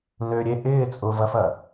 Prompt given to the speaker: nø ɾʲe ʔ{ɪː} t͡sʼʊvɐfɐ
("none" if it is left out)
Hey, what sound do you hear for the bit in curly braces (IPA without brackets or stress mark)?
ɪː